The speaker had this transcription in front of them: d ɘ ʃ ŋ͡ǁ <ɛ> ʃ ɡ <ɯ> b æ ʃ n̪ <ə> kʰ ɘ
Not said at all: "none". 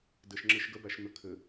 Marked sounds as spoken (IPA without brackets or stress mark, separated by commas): ɘ, ə, ə